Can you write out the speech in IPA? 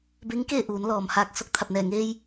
b e˧˥ ŋ k eː˥˨ ʔ uː˩˧ n l ɔː˩ m h aː˧ k̚ s o˥˨ k̚ t̪ʰ a˧˩ p̚ n ɛː˧˩ ŋ eː˧ j

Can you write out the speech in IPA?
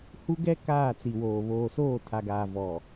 h u˦ ɡ ɛ˦ k aː˦˨ t͡s i˨ w oː˨ β oː˨ s oː˦˨ tʰ a˨ ɡ aː˨ v ɔ˨

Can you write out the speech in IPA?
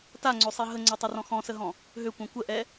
t a ŋ͡ǀ ø sˤ i ɦ ə ŋ͡ǀ ɛ tˤ ɛ r ɔ̃ x ɔ̃ s ə ɦ ɔ̃ | ɦ ø kʷ œ̃ kʷ ə ʔ ɛ

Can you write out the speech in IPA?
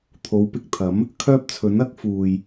t̪ʰ o˨˧ w p ɪ˨ k̚ t̪ʰ ɐ˨˥ m | kʰ œː˥ p̚ t͡sʰ ɵ˨˥ n ɐ˨˥ k̚ f uː˨ j

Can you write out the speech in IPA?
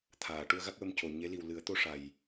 t̪ʰ aː˨˩˨ ʈ u˧ ə̯ ɣ a˦˥ k̚ w ə˧ m c o˨˩ ɲ e˧˥ l i˨˩ w l ɨ˨˩˦ ə̯ t̪ o˧ ʂ a˨˩ j

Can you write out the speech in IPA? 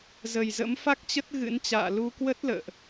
z ə˨˩ j z ə̰˧˥ m f a˦˥ k̚ t͡ɕ ə˦˥ t̚ ɣ ɨ̰˧˥ n t͡ɕ a̰ː˧˨ l u˧ k w ə˦˥ t̚ l ə̰ː˧˨ ʔ

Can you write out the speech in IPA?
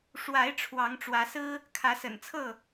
ʂ w a˨˦ ɪ̯ ʈ͡ʂʰ w ɑ˨˦ ŋ ʈ͡ʂ w ä˨˦ s ɹ̩˦ | kʰ ä˨˦ s ə̰˨˩ n t͡sʰ ɤ˥˨

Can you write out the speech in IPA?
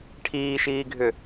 ʈʰ iː ʃ iː ɡʱ ʏ

